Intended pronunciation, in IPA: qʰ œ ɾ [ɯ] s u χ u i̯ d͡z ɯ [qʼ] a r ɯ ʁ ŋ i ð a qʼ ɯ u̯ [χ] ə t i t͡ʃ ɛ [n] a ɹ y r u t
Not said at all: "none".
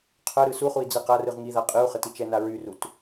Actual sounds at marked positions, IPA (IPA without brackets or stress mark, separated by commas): ɯ, q, χ, n